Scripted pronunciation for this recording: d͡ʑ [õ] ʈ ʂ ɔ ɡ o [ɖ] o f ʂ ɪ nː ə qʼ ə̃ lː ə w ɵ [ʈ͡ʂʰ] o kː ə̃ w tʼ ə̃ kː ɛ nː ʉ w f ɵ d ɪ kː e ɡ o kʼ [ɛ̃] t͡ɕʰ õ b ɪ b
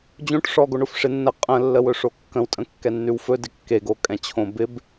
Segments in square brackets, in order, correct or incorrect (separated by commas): correct, incorrect, incorrect, correct